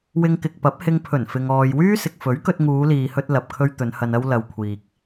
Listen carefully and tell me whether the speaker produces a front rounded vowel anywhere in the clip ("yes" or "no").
yes